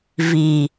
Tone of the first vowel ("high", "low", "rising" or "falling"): low